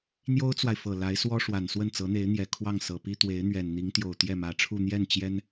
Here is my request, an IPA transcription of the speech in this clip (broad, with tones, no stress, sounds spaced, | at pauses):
n̪ j o˥ ʊ̯ t͡s w a˨ ɪ̯ f ɤ˨˩ l a˧˥ ɪ̯ s w ɔ˥ ʂ w a˨˩ n s w ə˥˩ n t͡s ɤ˧˥ n̪ e˧˥ ɪ̯ n̪ j ɛ˨˩ kʰ w ɑ˥˩ ŋ s ɤ˨˩ p i˥ t̪ w e˧˥ ɪ̯ n̪ ɥ ɛ˨˩ n n̪ i˧˥ ŋ t̪ j o˨˩ ʊ̯ t̪ j ɛ˥˩ m ä˧˥ ʈ͡ʂʰ u˥˧ n̪ j ɛ˥˩ n t͡ɕ j ɛ˥ n